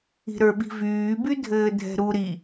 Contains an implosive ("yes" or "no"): yes